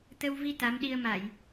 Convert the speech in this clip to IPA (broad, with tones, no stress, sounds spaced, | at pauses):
t̪ ə˧ w v i˧ t̪ a˨˦ m ɗ i˧ ə̯ m a˧˩˨ j